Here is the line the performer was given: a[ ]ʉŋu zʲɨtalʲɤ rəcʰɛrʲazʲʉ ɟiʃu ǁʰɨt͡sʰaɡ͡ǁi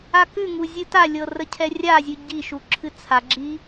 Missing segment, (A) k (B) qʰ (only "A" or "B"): A